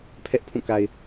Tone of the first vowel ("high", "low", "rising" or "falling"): high